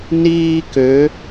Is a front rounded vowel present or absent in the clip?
present